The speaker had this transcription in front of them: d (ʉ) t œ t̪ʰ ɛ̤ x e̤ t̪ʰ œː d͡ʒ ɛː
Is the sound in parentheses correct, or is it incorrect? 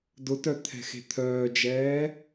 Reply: incorrect: ʊ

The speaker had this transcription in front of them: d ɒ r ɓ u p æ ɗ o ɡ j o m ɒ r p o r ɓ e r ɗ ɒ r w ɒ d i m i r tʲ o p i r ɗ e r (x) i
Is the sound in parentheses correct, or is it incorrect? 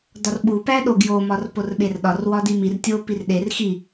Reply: correct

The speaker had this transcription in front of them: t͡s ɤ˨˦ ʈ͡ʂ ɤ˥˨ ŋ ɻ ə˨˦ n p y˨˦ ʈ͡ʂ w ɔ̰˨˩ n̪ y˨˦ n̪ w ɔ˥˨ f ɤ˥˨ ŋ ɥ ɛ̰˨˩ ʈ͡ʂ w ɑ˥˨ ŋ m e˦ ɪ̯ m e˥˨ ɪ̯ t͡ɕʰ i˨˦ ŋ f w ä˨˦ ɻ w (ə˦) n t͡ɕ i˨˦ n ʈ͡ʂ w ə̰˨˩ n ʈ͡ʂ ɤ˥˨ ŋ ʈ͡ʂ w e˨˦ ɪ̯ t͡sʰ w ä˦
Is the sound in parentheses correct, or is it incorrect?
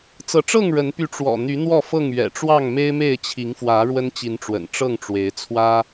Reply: correct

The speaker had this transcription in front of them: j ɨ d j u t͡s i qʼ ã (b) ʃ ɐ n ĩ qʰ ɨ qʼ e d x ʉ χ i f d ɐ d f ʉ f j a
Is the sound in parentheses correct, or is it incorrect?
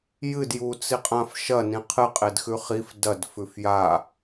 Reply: incorrect: f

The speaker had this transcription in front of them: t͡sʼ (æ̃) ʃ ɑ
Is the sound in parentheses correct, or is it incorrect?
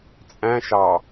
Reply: correct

